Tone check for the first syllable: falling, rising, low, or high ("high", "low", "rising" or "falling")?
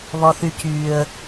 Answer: low